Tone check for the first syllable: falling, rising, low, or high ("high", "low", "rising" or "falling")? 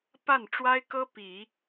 falling